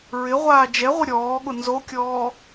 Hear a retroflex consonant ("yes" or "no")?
no